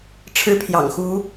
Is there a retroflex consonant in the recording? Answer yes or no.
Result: yes